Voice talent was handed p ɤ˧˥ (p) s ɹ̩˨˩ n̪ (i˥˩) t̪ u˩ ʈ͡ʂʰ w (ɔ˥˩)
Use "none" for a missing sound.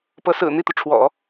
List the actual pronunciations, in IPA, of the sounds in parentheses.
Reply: none, i˥˩, ɔ̰˨˩˦

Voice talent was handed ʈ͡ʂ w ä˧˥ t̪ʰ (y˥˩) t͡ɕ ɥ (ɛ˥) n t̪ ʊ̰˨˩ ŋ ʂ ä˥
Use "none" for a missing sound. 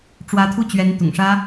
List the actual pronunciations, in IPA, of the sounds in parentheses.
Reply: u˥˩, ɛ˧˥

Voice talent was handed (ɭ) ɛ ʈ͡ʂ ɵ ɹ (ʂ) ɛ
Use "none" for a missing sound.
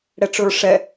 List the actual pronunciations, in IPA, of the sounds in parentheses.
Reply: ɽ, ʂ

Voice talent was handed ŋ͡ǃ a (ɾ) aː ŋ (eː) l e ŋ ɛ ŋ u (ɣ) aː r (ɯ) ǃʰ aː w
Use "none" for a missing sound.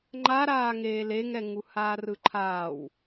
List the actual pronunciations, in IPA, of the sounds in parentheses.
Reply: ɾ, eː, h, ɯ

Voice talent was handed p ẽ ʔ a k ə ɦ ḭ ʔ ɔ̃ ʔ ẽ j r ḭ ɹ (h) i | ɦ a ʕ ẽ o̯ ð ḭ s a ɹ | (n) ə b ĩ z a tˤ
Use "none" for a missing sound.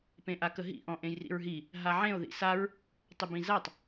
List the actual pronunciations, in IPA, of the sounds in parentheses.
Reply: ɦ, tˤ

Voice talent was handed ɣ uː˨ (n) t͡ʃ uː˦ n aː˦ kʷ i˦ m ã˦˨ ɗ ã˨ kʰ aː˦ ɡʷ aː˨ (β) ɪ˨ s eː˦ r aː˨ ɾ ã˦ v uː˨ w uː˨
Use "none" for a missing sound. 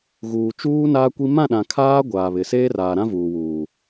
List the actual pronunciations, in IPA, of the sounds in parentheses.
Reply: none, β

